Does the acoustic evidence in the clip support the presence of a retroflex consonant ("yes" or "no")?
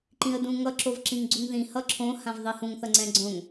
no